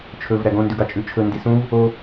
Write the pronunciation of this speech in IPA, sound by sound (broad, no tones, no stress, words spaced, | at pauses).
t͡ʃʰɵv ɾæɡõ ndʉɡɑt͡ʃʼʉt͡ʃʰɵ ndisũv | o